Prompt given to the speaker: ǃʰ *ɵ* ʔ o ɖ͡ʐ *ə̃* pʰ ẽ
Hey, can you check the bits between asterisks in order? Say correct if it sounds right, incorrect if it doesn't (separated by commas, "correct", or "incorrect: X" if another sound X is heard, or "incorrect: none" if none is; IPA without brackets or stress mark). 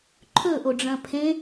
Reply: correct, incorrect: ɐ̃